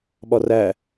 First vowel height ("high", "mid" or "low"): low